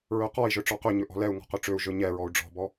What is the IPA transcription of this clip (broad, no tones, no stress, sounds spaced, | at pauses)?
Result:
ɹ ø q ɔ i̯ ʒ ɵ ʈ͡ʂ ɔ q ø ɲ ɵ ʔ ɔ̤ l ɛ u̯ ŋ ɔ̤ q ø ʈ͡ʂ ø u̯ ʒ ɵ ɲ ɛ ɹ ɔ u̯ ɖ͡ʐ ɔ̤ b ɔ